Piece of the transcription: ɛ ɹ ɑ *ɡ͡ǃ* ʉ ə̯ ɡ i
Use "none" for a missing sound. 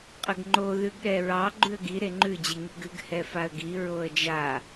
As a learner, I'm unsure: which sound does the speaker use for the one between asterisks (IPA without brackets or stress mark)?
ɡ͡ǃ